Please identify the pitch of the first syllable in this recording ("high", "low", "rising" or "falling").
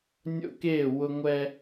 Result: high